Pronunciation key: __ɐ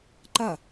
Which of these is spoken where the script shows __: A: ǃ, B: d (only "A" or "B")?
A